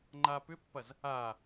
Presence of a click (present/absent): present